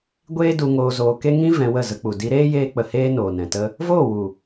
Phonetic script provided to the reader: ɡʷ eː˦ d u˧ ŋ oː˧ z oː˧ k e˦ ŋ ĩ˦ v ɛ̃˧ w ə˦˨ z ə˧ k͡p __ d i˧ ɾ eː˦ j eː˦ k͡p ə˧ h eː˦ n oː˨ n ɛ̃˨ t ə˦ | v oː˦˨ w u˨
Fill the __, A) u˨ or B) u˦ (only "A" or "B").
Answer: A